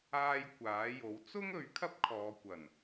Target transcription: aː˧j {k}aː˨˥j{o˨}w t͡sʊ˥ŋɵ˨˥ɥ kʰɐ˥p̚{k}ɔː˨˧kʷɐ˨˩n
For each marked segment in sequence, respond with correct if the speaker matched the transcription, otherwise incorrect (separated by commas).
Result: incorrect, incorrect, incorrect